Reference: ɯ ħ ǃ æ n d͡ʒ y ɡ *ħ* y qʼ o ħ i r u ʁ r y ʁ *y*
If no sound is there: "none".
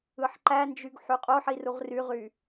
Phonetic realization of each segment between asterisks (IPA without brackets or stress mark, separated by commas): ħ, y